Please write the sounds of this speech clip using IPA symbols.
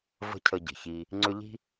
və̤˥cʰə˦ɟə̤˨çi˦ | ŋ͡ǀʏ˦ʎi̤˥

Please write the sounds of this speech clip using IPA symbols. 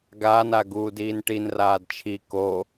ɡaːna ɡuːdiːnʈin raːdt͡ʃʰi ko

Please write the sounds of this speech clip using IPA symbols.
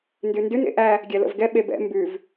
ndʉndʉn ḛʔæ | ɡʲɛlə̰vɡɛ ɓebɛ̰ mbʉv

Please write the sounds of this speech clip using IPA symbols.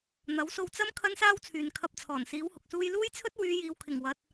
n̪ɐ˨˥wso˧w t͡sɐ˥m kʰɐ˥nsaː˥wt͡sʰyː˨n kʰɐ˧p̚t͡sʰɔː˨˩nsiː˨˥w hʊ˨k̚suː˥j luː˥jt͡sʰɵ˥t̚ wyː˨˧ jiː˨wkʰɪ˨˩ŋ wɐ˨˥t̚

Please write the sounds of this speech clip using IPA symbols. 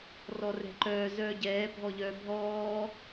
rɔrɛ̤ǃœː zœːɟɛː bʱɔʎœːbʱɔː

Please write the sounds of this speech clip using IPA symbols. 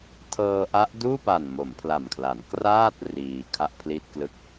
tʰɤː˧ʔa˦˥ʔduː˥˩pa˨˩n mo˩˦mpʰla˨˩mkʰla˩˦n kraː˥˩t̚ riː˧ kʰa˥˩ʔpʰli˥˩t̚klɯ˥˩k̚

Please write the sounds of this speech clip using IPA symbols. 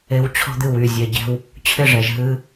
e˧w t͡ɕʰɔ̤˧d̪ɨ˨˩w y˨˩zʲɛ˨˩ɟɛ̤˧w | t͡ɕʰɪ˥˨ʐɛ˨˩ʒ ɦɨ˧

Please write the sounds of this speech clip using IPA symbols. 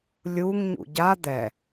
lʲuŋ ɲṵɟa d̪ɛ

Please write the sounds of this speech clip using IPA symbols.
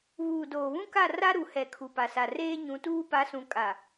βuː˨doː˨βũ˦ka˦˨ ra˦ɾu˨hɛ˨ kʰu˨pa˨sa˨ reː˦ɲũ˨˦tuː˦ pa˨˦sũ˨kʼa˨

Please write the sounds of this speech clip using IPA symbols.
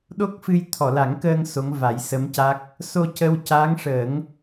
ɗo˦˥k̚fɨ˧j t̪ʰɔ˨˩˨la˨˩˦ŋkəː˧ŋ so˧˥ŋva˨˩˦jsə˧˥mca˦˥k̚ | so˧ cə˧wca˧˥ŋʂə˨˩˦ŋ

